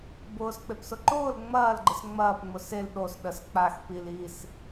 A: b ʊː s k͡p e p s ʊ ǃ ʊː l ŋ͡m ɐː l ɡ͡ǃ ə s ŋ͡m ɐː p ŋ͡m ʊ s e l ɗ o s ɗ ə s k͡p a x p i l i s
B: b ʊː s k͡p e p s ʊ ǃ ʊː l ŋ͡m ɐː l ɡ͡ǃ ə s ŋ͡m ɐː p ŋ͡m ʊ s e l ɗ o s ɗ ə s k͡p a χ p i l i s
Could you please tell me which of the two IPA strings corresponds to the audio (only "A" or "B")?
A